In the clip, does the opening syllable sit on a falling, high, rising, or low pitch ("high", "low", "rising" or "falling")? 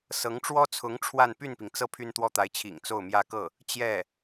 rising